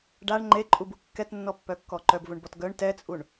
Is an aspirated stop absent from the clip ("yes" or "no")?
yes